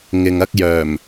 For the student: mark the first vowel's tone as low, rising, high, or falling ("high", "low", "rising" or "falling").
low